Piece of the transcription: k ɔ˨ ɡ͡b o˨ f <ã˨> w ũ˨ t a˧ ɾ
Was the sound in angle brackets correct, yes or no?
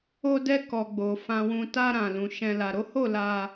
yes